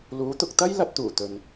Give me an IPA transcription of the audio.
luː˨˥ t̪ʊ˨k̚t̪ɐ˥j lɐ˧t̚t̪uː˨˩t̪ɵ˨n

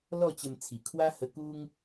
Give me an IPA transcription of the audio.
lɔ˥˧t͡ɕə˧mt͡sʰi˨˩ kʰwa˦hə˧ku˦ŋ

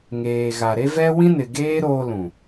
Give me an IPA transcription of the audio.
ŋeː˨ɣa˨ɾe˦vɛ˦ wĩ˦nɪ˨ ɡeː˦ ɾoː˦ lũ˨

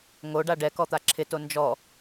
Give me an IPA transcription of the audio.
ŋoɖa ɖɛkɔt̪a ǁʰɪto nd͡ʒɔ

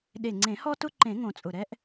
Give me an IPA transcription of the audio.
ɗe˨˩ŋ͡ǀẽ˨˩˦hɔ˦tʊ˦ ǃẽ˨˩˦ŋõ˨˩t͡sʼʊ˨˩ɾɛ˦ʔ

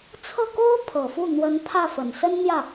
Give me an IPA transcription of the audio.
t͡sʰɤ˥˩ko˥ʊ̯ pʰɤ˨˩fu˥˩ n̪wə˧˥n pʰä˥˩fə˨˩nsə˥n n̪jä˥˩

